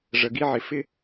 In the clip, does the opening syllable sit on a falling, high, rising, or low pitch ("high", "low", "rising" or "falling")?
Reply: low